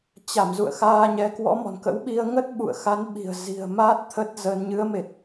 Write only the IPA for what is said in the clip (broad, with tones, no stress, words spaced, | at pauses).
t͡ɕa˧˩m zṵ˧˨ə̯xaː˧ɲɛ˨˦ kwɔ̰˧˥mɔ̤˨˩nkə̰˧˥wɓi˧ə̯ ŋə˦˥t̚ɓṵ˧˨ə̯xa˨˦nɓi̤˨˩ə̯ zi̤˨˩ə̯ma˦˥t̚ t̪ʰə˦˥t̚zə˧n ɲɨ˨˦ə̯me˨˩t̚